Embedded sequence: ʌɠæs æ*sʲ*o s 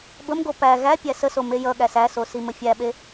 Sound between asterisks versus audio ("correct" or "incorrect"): incorrect